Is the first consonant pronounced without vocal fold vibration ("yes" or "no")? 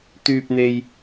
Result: yes